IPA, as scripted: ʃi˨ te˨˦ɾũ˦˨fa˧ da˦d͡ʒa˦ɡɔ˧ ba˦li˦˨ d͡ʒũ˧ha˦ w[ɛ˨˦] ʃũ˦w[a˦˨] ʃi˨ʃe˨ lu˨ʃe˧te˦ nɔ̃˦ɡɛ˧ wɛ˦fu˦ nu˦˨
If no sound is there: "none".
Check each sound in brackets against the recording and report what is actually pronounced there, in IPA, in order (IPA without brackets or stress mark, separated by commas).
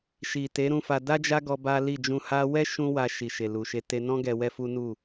ɛ˦, a˧